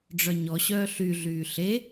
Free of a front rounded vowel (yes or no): no